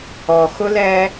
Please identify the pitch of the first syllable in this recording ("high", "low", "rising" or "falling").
low